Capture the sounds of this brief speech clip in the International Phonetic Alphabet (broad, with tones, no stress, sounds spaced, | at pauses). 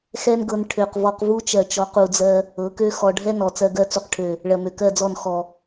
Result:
x ɛ˦ n ɡ ɤ˧ n ʈʰ ø˨ q v ɔ˧ q v u˦ t͡ʃ ɜ˨ t͡ʃ ɔ˨˦ q u˨ d͡z ɜ˧ | ɤ˨˦ k ø˦ x ɔ˨ ɖʱ ɛ˦ n ɔ˨ t͡s ɜ˧ ɡ ɜ˧ t͡s u˨ q ʈʰ ø˨ | ɭ ɜ˨ m ø˨ k ɜ˦˨ d͡z ɔ˦˨ n x ɔ˨